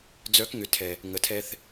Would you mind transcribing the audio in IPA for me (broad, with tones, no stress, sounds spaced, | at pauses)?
d͡z œ˨˦ k ŋ ʏ˨ tʰ ɛ˨ | ŋ ə˨ tʰ ɛ˧ θ